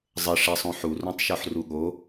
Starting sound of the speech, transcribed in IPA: zˤ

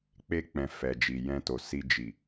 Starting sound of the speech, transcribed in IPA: k͡p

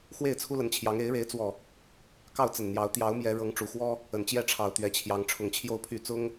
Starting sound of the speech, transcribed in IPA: x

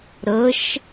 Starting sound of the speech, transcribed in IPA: ɾ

